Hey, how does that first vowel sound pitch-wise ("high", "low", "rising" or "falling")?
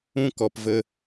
high